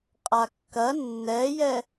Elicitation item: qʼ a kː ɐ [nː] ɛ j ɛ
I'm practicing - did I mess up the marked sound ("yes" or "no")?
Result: no